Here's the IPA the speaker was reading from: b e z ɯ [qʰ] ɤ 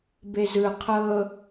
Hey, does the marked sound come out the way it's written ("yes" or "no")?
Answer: yes